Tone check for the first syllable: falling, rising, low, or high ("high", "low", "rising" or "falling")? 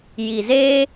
low